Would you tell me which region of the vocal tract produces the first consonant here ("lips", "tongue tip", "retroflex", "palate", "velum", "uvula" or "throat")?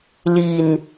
tongue tip